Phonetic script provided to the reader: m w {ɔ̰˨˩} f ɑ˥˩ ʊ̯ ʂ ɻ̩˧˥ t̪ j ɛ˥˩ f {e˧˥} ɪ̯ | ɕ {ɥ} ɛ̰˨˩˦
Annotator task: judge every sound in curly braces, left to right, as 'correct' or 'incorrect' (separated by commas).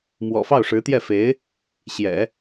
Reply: correct, correct, incorrect